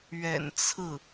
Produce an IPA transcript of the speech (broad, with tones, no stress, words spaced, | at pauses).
ɥɛ̰˨˩nt͡sʰɹ̩˥˩